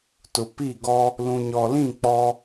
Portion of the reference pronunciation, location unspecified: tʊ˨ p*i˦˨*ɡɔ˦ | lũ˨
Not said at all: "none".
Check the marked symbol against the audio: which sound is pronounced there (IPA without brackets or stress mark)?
i˦˨